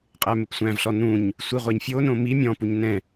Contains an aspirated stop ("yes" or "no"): no